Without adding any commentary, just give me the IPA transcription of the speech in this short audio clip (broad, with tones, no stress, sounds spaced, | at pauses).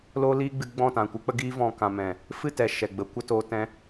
l oː˦ l iː˦ ɡ͡b ɨ˧ ɡ͡b ɔ̃˦˨ t ã˨ kʷ ɨ˧ k͡p ə˦ ɡ iː˧ v ɔ̃˨ k ã˨ m ɛ̃˨ | f ɨ˦˨ t ɛ˨ ʃ ɛ˨ ɡ͡b ə˨˦ kʷ ə˧ t oː˧ t ɛ̃˧